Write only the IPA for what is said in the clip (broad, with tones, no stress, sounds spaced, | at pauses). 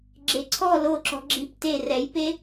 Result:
ɡ͡ǁ e˨ ǀʰ ɔ˦˨ l o˦˨ ǁ ɔ̤˧ ɡ͡ǁ i˧ p t e˦˨ r ɛ˨˦ j p e˦